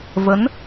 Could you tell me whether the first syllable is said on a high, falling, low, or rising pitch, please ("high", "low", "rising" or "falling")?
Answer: rising